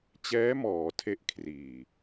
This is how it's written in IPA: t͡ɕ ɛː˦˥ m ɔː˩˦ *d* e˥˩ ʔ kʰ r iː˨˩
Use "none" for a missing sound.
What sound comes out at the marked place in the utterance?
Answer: tʰ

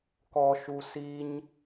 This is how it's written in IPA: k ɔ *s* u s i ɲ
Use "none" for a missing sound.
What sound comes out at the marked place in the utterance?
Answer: ʃ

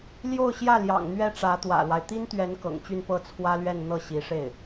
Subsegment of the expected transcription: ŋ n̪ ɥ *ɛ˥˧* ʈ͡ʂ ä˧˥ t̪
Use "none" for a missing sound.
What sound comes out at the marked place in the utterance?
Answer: ɛ˥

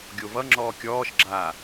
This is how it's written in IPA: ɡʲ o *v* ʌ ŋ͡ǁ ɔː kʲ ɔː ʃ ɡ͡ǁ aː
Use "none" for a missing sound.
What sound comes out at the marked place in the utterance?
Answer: v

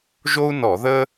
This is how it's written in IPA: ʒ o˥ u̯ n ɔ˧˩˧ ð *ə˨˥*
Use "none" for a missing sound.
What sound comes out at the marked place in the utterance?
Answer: ə˥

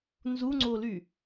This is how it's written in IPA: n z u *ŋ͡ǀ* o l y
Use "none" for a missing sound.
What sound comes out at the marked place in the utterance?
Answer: ŋ͡ǀ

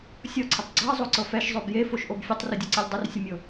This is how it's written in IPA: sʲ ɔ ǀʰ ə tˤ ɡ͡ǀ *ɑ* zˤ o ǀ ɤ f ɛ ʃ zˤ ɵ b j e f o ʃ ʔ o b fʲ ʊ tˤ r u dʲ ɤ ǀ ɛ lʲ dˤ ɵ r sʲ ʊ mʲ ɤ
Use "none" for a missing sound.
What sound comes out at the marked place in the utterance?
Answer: ɑ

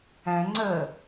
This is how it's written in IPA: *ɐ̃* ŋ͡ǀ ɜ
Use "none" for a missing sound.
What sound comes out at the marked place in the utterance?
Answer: æ̃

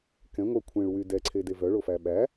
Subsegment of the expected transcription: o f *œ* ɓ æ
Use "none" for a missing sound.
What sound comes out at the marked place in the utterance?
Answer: æ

